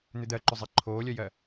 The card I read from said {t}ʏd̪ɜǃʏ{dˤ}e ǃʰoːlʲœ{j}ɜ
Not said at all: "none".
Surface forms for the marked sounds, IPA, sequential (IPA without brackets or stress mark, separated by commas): n̪, zˤ, j